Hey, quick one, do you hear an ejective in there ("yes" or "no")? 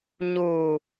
no